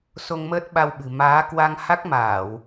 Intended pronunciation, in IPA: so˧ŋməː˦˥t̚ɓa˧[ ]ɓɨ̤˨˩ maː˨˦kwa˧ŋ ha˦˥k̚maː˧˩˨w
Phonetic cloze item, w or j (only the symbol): w